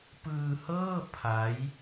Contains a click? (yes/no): no